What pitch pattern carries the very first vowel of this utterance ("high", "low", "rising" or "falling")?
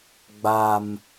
high